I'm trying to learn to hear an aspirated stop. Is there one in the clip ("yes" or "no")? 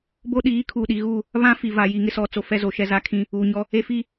yes